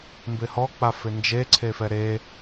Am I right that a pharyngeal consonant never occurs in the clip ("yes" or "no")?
yes